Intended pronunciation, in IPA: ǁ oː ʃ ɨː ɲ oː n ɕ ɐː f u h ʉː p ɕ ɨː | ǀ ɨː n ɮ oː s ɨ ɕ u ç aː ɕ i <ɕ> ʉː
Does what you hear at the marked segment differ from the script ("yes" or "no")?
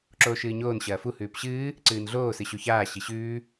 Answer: no